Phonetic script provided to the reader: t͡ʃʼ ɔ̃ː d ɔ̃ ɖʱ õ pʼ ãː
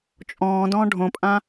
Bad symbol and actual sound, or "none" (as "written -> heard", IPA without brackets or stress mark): ɔ̃ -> ɔ̃ː